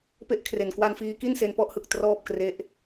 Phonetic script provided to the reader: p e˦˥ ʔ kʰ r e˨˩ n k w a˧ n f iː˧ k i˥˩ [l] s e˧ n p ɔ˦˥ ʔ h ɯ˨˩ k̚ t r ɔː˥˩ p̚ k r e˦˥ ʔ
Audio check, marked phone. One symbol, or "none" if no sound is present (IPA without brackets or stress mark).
n